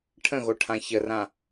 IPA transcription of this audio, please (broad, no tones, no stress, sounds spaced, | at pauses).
ʈʰ ə̃ ɣ o ʈʰ ã ç ə r ã